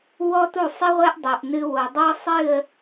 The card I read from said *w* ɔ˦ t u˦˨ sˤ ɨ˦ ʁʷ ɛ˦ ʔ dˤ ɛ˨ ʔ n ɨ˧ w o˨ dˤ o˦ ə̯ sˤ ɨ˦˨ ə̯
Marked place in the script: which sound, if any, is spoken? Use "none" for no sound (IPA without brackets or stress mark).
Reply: w